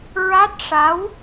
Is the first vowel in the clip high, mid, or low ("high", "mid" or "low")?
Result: low